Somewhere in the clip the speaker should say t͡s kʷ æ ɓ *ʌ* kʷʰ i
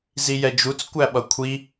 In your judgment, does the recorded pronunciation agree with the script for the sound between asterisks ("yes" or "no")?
yes